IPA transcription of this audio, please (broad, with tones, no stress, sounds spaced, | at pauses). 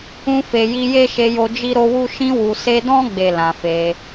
ũ˧ f e˨ j i˧ j e˦ ʃ e˧ j o˧ d͡ʒ i˦ ɾ o˦ w u˦ ʃ ĩ˧ w u˨ s e˧ d ɔ̃˦ ɡ͡b e˦˨ l ã˨ f e˧